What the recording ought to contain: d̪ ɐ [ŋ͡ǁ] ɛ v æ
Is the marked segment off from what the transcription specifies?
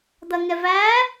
yes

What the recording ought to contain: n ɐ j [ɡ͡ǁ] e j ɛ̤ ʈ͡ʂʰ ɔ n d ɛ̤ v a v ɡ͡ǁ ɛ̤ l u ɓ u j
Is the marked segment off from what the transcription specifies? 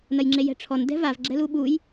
yes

